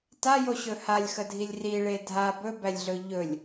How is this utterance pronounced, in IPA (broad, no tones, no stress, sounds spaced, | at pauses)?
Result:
t a j o ɕ ɵ h a lʲ x ə dʱ i lʲ r i ɭ e dʱ a b ɵ b æ lʲ ɮ ɵ ʎ ɵ lʲ